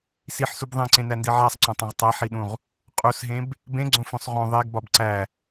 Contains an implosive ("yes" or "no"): yes